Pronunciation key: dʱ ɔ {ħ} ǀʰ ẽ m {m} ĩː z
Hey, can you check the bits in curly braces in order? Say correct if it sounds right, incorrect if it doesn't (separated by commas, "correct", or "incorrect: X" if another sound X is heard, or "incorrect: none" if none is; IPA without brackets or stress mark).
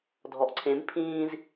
incorrect: ʔ, incorrect: pʰ